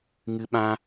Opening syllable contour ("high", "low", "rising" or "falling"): high